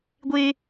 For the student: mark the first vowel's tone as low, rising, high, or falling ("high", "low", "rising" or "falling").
high